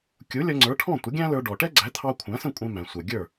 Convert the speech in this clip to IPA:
kʲu˩˥lʲʌ˧ŋ͡ǀə˞˩˥ ʈʰɔ̃˥˩ tʷə˩˥ɡʲæ̃˥lə˞˧ ɖɔ˩ ʈɛ˥ɡ͡ǀæ˩˥ t̪ʰɑ˧ kʷʰæ̃˩˥sə̃˥˩kʷʼɛ̃˧ mæ̃˩sʷɛ˩ ɡʲə˞˥˩

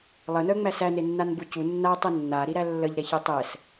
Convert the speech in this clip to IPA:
lˠənœŋ͡mæ sænenːanbu cu nːatˤe nːaɾiɾæ lːəʎɾɛçe tˤɛs

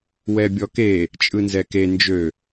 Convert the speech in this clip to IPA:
wɛbʲɔke | t͡ʃʼɯnzɛke nd͡ʒø

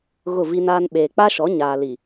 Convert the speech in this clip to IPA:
ɣʊ˦˨vi˦naː˦n ɓeː˨k͡pa˦ʃɔ˨˦ ɲaː˨li˨

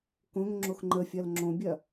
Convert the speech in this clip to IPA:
kõŋŋ͡ǁox ŋ͡ǃəfʲɐl ŋ͡ǁõbʲɐ

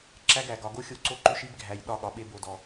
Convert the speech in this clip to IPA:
ǁæ˦ɡæ˨ɡɒ˨ ɡo˦xʲo˦˨ǀo˦ǃʉ˦ʃ i˦bɡʱæ˨j ɗɒ˦˨ɠɒ˨ɓe˦ bo˨dɔ˨

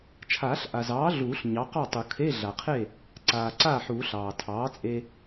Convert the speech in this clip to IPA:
t͡ʃʰaː˨˩˦ɬ ʔa˩zɑː˩˥ ɮuː˨˩˦ɬɲɑ˩˥qɑ˥˩tˤu˩ kʰe˧˥˧ɮa˩qʰe˥˩ | ǀaː˩ǀaː˥˩ħuː˨˩˦ ɬɑː˩tʰɑː˩˥t͡sʼe˧

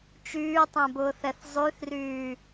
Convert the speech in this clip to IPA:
t͡ʃyːtˤɛ̃bʊːθɛθ zˤyθryː

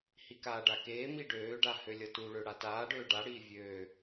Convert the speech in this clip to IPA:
hikaːɖakeː miɖøːɖa hølʲʌtuɭø ɽataːɖøː ɖaɽiː vʲøː

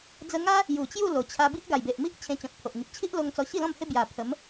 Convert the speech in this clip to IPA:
d͡zə˧ŋa˦ | ju˨˩t͡ɕju˥˧ lo˨˩ t͡ɕʰa˧ bi˦ʔɡa˨˩jbe˨ʔmi˦ʔ t͡ɕʰẽ˧t͡ɕɔ̃˨t̚pʰo˨ʔŋi˨p̚ t͡ɕʰi˦ʔlo˧ŋ t͡sɔ˧ɕi˥˧lɔ̃˥˧mhe˦ bja˨˩ pʰə˨˦m

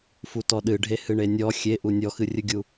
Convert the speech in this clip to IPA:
futɔɗɨɖʱe hɨɳenʲɔ xʲeʔu nʲɔxɨrʲɨɡʲu

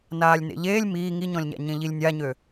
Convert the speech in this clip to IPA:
naːlʲnḛʎeːlʲ miː ŋiɲɔ̃lʲɲa̰ɲẽ ʎilʲnʲaɲø

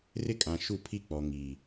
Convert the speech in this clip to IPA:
rɪ˦kʼã˨ ʃu˦˨pʰi˦k͡pɔ˨ ŋi˨

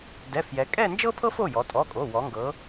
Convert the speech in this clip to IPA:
dɛ˩˧˩fjɛ˩˧ kʼɛ˥˧nd͡ʒɤ˥pʰɤ˥f o˩˧˩jɔ˩˧tʼɔ˩˧˩kʼo˩˧˩ wɔ˩˧ŋɡɤ˩˧

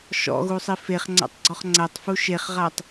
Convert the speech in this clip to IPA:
ʃɔ̰ɣusˤi feχŋ͡ǀa̰tˤɡ͡ǀɔχ ŋ͡ǀætˤfu ʃeχʁatˤ

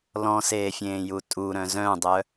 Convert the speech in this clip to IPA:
lɔ̃seːfʲẽːju tʼuɾœ̃ zœ̃dˤœ

